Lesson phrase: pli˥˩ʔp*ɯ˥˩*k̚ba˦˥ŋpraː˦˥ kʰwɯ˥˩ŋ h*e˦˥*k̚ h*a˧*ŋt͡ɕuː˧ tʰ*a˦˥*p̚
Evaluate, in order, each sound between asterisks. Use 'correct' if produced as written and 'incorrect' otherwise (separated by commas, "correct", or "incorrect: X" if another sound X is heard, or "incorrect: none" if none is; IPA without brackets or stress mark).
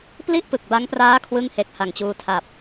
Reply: incorrect: ɯ˨˩, correct, incorrect: a˨˩, incorrect: a˨˩